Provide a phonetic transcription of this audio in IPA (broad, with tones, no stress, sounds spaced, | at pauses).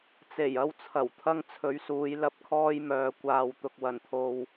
t͡s e˨˩ j ɐ˧ w t͡sʰ ɐ˨˩ w t̪ʰ ɐ˥ ŋ t͡sʰ ɵ˨˧ ɥ s uː˨˧ j l ɐ˧ p̚ kʰ ɔː˥ j m œː˨ kʷ aː˨ w t̪ ʊ˨ k̚ w ɐ˨˩ n t̪ʰ o˨ w